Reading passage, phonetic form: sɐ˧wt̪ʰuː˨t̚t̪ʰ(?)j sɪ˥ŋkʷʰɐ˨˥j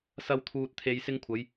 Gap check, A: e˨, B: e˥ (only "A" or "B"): A